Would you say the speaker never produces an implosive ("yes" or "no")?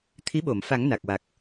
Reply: no